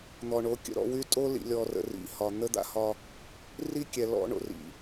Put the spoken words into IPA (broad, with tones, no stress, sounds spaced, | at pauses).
n̪ ɔ˨ ɳ o˨˦ kʲ ə̰˨ ɾ ɔ̰˦˨ w y˦ tʼ o˦ l ḭ˨ lʲ ɔ˨ r ə̰˨ r ḭ˨ h ɒ˨ n̪ ə˦ d̪ a̰˦ h ɒ˦ | r i˦ kʲ ɛ˨ l ɔ̰˦ ɳ o̰˨ r ḭ˨